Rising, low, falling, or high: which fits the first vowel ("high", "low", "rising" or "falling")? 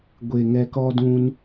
low